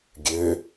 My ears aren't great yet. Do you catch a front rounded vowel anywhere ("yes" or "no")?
yes